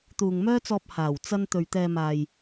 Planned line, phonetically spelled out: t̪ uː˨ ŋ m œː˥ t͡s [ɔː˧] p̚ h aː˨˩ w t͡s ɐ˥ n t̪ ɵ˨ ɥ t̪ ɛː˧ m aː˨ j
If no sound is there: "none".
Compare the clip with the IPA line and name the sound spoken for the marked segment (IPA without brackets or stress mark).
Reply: ɔː˧